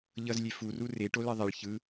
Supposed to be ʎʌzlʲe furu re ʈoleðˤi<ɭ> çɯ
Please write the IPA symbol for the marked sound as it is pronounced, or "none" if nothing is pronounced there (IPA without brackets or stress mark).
ɭ